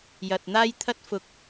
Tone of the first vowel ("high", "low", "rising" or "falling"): low